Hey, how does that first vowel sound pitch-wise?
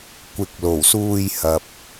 rising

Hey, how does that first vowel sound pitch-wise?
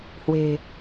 low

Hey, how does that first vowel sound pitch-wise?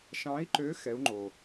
rising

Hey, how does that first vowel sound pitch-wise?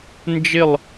falling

